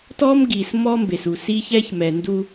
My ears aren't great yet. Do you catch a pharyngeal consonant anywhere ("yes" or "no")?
no